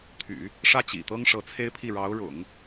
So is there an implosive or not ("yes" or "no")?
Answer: no